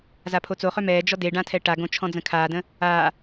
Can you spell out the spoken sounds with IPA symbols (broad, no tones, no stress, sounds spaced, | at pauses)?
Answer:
z a pʰ o t͡s o χ ø m ɛː d͡ʒ ɔ d e ɖ ã tʰ ɛ ʈ a ɡ õ t͡ʃʰ ɔ̃ d͡z ə̃ kʰ aː d ə̃ | aː